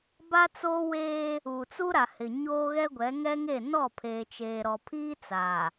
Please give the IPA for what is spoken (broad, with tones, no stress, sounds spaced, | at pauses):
b a˦ t͡s oː˦ w eː˦ | u˨ t͡s u˦ ɾ a˨ h ɪ˨ ɲ oː˦ ɣ ɛ˦ ɡʷ ɛ˨˦ ŋ ɛ˦ ŋ e˦˨ n ɔ˦˨ pʰ eː˨ t͡ʃ eː˨ ɾ ɔ˨ pʰ iː˦ t͡s a˨